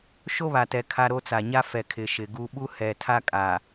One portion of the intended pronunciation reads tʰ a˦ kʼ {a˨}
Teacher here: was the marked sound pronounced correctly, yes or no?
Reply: yes